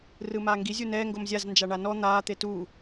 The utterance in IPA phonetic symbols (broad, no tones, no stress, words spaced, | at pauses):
rɯmaːŋɡi zʲunɛː ŋɡomzʲaz nd͡ʒaɳanɔ n̪aː t̪etu